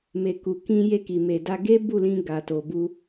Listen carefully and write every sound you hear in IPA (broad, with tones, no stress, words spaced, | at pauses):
me˨ku˨kĩ˧ je˧ki˨ me˨da˧ ɡe˦bu˦˨lĩ˧ ɡa˨to˨bu˧